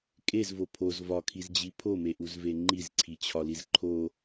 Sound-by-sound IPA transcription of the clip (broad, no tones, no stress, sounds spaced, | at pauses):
kʼ e z v o pʰ o z v ɒ kʰ i z d͡ʑ i pʰ o m e ʔ u z v e ŋ͡ǃ i z ǀʰ i t͡ɕʰ ɒ l i z ǃʰ o